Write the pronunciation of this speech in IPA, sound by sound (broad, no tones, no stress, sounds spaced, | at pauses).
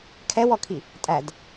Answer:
kʰ ɛ w ɔ kʰ i | tʼ æ d